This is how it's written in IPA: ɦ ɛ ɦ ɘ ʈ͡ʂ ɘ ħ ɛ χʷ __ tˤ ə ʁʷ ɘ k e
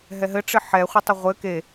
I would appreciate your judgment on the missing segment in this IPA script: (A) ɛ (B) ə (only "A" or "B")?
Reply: B